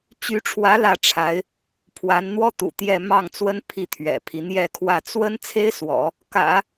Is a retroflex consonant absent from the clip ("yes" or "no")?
no